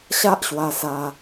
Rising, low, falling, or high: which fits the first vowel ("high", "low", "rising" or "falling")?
high